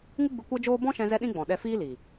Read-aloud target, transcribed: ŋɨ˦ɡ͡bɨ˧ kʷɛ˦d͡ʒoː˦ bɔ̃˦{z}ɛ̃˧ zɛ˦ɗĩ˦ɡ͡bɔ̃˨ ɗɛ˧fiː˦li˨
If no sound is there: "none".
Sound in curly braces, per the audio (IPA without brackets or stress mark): ʃ